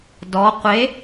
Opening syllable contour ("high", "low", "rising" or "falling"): rising